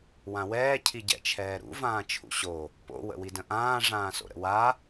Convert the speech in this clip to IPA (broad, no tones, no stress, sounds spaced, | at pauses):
w ã w ɛː cʰ i ɟ ɛ̰ t͡ʃʰ ɛː ɾ ṵ v ãː t͡ʃʰ ṵ ɕ o | p o̰ w ə̰ w i d ə̃ ʔ ãː ʐ ãː s o̰ ɾ ə̰ w a